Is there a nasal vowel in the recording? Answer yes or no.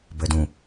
yes